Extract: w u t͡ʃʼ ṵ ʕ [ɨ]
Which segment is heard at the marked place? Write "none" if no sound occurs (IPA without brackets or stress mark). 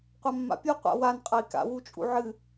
ɨ